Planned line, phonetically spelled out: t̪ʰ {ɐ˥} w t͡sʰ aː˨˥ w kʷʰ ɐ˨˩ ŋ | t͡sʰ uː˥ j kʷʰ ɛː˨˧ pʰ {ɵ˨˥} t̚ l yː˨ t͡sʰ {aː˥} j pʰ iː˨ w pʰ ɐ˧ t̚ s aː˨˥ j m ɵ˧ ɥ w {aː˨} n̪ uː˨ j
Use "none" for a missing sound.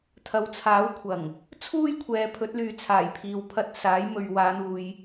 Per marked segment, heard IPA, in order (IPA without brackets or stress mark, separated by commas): ɐ˨˧, ɵ˨˥, aː˨˩, aː˨˧